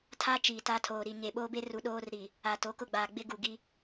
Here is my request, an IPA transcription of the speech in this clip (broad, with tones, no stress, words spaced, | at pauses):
tʰa˦ t͡ʃiː˨ta˦tʰoː˨ɾi˨ ɲe˨ɓoː˦be˦ ru˨ɗoː˦rɾi˨ | a˨ to˨˦kʊ˦˨ɡ͡baː˨ ɡ͡bɪ˦ɡu˨ ɡi˦